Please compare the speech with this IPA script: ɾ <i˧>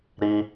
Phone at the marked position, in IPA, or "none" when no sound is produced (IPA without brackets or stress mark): i˧